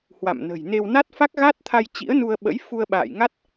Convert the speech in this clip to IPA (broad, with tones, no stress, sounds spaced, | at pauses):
h w a̰˧˨ m n ə̤˨˩ j n e˧ w n a˦˥ t̚ f a˦˥ k̚ ɣ a˦˥ t̚ t̪ʰ a˧ j t͡ɕ ḭ˧˥ ə̯ n u˧ ə̯ ɓ ə̰˧˥ j f u˧ ə̯ ɓ a̰ː˧˨ j ŋ a˦˥ t̚